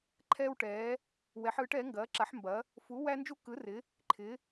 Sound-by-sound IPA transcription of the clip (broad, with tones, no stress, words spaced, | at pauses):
ǃʰɛː˥wʈɛː˨˥ | wɛ˨˥ħɯː˨˥ʈ ɛ˨˥ŋɡɐː˨˥ ǁa˨˥ħmbɐ˨˥ | fu˨˥ wæ˥nd͡ʒu˥kɯ˨˥rɪ˨˥ | ǃʰɪ˨˥